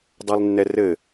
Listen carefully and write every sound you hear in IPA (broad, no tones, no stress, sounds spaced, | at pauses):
dˤ ɛ lˠ nː ɛ r ɘ